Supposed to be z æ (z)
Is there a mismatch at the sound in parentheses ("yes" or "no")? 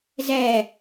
yes